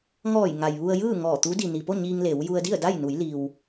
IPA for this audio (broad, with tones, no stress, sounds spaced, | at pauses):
ŋ ɔː˧˩ j ŋ a˩ j ʋ u˧ ə̯ j ɯː˥˨ ŋ ɔː˧˩ t̪ u˧˥ d i˩ n i˩ p o˥˨ ɲ iː˧ ŋ l e˩˧ w j u˧ ə̯ d i˥˨ ə̯ d a˥˨ j n u˩˧ j l i˩ w